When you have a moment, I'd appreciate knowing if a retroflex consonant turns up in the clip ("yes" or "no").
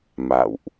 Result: no